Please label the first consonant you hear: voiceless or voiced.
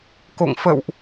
voiceless